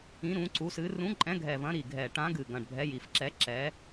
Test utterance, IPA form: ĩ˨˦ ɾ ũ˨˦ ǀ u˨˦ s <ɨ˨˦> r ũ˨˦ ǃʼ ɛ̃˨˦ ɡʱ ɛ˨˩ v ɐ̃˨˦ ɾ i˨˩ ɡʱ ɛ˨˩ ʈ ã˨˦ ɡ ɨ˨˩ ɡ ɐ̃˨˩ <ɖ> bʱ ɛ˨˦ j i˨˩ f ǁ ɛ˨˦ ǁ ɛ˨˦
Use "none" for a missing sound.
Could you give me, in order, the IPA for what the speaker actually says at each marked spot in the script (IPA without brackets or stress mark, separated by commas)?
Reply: ɨ˨˦, ɖ